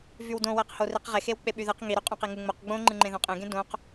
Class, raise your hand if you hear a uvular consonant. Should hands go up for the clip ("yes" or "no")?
yes